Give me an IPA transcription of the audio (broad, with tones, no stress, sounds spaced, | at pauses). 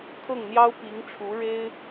kʰ ɤ˥˩ ŋ n̪ j ɑ˥ ʊ̯ p i˧˥ ŋ ʈ͡ʂʰ u˧˥ ɻ e˥ ɪ̯